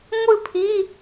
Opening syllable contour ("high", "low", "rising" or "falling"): falling